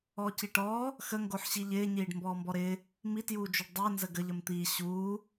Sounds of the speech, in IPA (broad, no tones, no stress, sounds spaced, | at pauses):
ɔː c i ʈ ɔː | x ə ŋ ɡ o ħ ɕ i ʎ ɪː ɲ iː ɖ m b ɔː m b ɔ ɾ ɪː | m i t j uː d͡ʒ o ɖ dˤ ɪː n z ə ɡ ə ʎ ə m t̪ iː ɕ uː